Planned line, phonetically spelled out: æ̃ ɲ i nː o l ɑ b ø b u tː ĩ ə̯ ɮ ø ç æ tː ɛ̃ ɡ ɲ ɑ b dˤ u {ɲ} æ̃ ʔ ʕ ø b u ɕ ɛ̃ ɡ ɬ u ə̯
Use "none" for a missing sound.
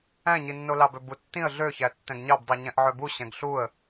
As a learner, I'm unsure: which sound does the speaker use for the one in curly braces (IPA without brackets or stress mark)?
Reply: ɲ